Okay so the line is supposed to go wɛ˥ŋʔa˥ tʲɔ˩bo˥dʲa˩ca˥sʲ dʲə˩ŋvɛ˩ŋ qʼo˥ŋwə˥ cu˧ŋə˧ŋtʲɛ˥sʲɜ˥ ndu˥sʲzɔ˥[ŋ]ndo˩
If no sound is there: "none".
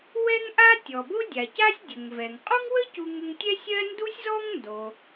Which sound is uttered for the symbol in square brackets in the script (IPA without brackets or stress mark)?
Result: ŋ